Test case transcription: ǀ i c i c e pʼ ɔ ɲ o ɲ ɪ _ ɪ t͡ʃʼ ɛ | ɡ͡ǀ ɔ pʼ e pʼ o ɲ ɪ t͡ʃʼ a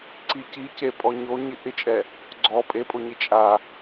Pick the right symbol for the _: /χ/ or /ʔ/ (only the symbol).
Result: ʔ